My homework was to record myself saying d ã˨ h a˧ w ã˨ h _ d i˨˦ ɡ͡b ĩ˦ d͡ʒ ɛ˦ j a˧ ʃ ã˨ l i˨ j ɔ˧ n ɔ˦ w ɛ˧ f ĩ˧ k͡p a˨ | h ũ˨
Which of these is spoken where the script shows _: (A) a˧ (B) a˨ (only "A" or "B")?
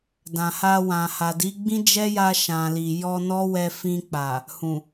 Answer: B